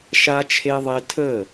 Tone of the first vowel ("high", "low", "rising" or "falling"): high